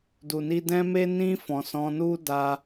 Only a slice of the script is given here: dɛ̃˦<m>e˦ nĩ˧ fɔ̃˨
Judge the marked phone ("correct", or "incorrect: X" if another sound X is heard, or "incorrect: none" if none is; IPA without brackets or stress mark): correct